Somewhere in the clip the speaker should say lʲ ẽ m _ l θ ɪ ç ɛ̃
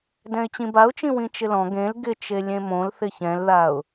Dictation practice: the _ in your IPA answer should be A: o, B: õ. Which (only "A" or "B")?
B